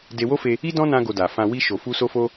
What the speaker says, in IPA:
d e˧ w o˦ f e˧ | i˦ d ɔ̃˦ n ã˧ ɡ o˧ d a˨ f ã˧ w i˧ ʃ o˨ f u˧ s o˧ f o˧

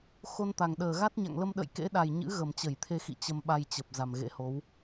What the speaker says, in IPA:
x o˧ n t̪ a˨˩ ŋ ɗ əː˨˩ ɣ a˦˥ t̚ ɲ a̰˧˨ ŋ l ə˧ m ɗ ə̰˧˨ j k ḛ˧˥ ɗ a˨˩ j ɲ ɨ̰˧˥ ɣ ə˨˩ m t͡ɕ ə˧˩ j t̪ʰ e˧ x ḭ˧˨ t͡ɕ ə˧ m ɓ a˧ j t͡ɕ ə˨˩ p̚ z a˨˩ m ɣ ḛ˧˥ h o˨˦ w

